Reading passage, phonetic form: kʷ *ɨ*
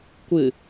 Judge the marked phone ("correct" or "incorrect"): correct